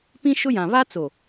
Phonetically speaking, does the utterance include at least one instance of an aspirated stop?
no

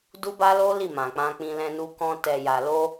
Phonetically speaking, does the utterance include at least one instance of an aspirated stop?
no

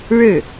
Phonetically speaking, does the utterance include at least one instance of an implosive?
no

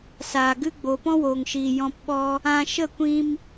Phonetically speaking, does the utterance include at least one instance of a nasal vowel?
yes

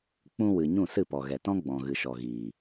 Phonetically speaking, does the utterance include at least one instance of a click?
no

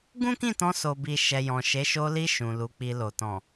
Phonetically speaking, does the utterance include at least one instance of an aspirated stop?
no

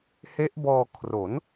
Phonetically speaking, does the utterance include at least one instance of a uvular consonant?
no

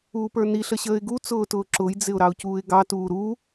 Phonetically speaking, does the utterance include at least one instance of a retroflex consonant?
no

